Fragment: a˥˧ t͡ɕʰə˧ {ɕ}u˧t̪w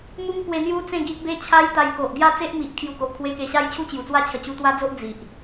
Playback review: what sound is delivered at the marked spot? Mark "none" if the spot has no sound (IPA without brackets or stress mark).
t͡ɕ